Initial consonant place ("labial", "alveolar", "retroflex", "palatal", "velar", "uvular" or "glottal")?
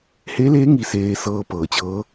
glottal